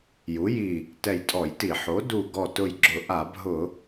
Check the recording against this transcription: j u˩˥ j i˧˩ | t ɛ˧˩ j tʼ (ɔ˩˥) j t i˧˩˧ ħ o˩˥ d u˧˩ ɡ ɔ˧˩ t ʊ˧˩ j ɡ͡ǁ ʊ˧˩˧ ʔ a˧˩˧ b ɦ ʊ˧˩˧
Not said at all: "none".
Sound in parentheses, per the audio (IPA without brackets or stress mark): ɔ˧˩˧